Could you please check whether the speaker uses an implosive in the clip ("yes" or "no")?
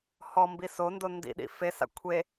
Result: yes